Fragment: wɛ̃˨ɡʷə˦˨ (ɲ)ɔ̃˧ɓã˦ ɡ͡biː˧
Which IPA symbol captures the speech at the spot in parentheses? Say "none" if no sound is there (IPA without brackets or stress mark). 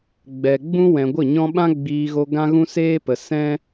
ɲ